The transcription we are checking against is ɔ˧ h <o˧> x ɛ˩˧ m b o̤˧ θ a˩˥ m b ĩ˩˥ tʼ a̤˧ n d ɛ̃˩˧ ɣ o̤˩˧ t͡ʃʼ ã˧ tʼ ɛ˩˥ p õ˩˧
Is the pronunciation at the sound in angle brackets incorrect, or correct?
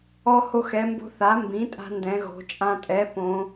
correct